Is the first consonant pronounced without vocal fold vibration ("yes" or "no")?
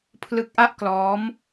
yes